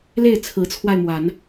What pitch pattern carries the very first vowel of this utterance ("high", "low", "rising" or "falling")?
falling